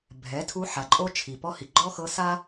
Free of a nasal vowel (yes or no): yes